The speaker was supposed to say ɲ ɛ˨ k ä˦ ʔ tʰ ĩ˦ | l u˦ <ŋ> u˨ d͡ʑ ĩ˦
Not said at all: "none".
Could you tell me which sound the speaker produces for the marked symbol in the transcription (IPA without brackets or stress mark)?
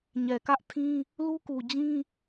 k